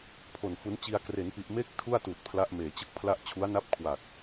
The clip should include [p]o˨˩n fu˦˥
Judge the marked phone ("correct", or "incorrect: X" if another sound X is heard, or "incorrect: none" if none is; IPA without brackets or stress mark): incorrect: pʰ